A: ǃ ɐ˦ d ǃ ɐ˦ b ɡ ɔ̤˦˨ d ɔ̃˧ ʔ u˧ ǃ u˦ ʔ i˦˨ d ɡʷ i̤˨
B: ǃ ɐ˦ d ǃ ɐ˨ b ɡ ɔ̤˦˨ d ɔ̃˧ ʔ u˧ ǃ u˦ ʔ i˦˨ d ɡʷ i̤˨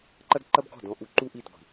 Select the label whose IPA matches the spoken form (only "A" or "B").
A